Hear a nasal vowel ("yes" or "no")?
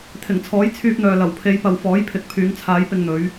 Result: no